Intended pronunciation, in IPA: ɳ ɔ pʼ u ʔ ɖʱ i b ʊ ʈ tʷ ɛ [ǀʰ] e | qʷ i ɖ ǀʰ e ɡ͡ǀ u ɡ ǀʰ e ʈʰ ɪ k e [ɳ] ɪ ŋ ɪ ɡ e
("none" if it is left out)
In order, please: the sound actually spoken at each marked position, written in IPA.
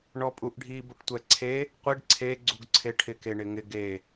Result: ǀʰ, ɳ

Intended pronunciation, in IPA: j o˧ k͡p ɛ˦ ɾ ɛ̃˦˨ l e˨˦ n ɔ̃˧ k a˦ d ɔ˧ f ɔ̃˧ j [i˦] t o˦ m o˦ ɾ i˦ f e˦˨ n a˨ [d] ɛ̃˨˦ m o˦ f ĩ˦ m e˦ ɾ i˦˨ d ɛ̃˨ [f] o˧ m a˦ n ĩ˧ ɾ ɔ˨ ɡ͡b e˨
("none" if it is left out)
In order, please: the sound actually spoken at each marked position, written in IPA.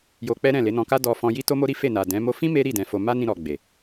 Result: i˦, d, f

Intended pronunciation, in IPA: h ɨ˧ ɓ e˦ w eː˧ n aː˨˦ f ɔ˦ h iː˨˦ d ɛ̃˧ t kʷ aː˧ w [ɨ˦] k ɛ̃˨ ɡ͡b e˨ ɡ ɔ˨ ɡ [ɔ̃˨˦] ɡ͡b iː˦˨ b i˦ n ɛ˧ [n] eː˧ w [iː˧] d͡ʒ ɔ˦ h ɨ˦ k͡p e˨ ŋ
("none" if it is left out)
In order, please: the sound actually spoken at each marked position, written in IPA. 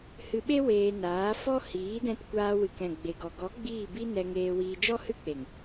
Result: ɨ˨, ɔ˨˦, ŋ, iː˧

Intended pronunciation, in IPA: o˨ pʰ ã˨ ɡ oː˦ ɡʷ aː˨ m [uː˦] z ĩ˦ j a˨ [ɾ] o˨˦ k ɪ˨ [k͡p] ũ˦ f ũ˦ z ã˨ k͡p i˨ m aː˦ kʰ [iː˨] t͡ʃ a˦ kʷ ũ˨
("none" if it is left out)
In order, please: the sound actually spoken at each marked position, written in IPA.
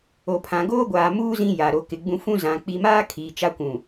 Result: uː˦, ɾ, ɡ͡b, iː˨

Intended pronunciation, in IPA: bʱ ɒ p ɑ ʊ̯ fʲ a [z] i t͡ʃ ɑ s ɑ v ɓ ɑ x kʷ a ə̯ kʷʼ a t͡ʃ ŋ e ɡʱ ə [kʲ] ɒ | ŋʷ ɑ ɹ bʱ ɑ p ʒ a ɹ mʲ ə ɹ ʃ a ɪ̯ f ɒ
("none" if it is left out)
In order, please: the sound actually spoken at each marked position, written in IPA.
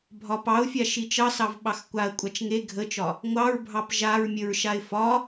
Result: ʃ, t͡ʃ

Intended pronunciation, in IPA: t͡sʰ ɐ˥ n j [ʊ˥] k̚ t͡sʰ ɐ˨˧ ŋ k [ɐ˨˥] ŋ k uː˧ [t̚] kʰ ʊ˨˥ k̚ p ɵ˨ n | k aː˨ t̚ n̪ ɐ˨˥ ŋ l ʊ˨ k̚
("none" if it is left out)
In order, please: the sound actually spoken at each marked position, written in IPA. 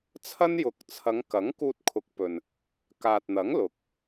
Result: ʊ˨˥, ɐ˨˥, t̚

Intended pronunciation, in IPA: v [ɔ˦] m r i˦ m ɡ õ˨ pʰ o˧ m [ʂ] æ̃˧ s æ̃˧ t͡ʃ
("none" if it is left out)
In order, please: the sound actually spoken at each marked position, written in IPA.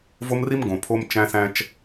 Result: o˦, t͡ʃ

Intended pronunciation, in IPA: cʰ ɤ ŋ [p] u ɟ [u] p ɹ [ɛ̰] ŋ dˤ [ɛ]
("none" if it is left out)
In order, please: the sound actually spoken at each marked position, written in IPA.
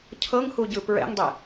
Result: h, ɯ, ɛ̰, e

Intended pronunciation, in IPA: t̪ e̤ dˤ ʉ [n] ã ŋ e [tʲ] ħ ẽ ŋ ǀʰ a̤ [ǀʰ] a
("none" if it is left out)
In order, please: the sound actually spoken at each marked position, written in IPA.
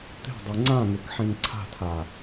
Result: ŋ͡ǀ, k, tʰ

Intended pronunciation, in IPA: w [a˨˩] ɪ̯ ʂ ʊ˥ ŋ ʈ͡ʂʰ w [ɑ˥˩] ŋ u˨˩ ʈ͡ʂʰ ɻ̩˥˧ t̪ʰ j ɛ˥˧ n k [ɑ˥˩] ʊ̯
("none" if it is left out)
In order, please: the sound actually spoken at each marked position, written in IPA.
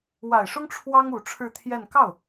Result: a˨˩, ɑ˥, ɑ˥˩

